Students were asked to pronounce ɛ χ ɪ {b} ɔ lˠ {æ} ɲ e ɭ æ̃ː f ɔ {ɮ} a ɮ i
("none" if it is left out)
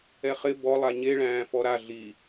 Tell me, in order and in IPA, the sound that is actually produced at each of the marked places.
b, a, ɾ

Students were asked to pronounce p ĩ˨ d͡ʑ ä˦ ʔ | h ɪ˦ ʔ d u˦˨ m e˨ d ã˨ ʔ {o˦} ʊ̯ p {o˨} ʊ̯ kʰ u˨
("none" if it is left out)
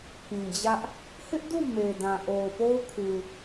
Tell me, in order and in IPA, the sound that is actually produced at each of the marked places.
o˨, o˦

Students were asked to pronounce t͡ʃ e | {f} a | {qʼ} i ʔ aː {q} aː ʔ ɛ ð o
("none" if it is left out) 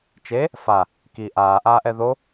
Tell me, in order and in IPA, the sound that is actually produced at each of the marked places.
f, k, ʔ

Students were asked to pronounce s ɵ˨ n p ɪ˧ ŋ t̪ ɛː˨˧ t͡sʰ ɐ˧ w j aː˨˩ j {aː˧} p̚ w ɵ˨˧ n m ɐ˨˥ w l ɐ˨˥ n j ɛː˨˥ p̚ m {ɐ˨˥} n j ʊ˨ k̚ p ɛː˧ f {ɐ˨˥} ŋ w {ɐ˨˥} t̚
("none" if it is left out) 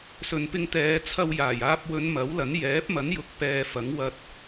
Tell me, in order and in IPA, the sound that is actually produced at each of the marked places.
aː˧, ɐ˨˥, ɐ˨˥, ɐ˧

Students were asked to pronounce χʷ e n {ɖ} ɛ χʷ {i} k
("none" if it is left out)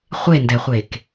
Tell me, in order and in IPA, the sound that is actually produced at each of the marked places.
d, e

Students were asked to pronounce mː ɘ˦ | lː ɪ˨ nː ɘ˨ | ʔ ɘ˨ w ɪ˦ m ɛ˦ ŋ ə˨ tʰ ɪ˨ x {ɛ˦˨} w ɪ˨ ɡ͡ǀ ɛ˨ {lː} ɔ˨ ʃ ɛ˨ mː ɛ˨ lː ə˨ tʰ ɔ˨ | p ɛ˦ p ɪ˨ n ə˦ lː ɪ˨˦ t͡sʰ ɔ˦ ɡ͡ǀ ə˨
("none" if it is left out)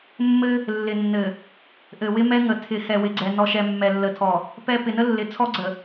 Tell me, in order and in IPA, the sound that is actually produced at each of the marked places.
ɛ˨, n

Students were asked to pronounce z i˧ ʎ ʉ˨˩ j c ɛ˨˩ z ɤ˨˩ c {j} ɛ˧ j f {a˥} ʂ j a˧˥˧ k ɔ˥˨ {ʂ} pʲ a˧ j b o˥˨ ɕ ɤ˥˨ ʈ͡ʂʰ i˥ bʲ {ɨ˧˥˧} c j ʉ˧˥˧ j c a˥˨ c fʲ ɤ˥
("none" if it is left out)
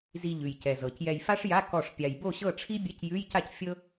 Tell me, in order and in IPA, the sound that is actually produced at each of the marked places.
j, a˥, ʂ, ɛ˧˥˧

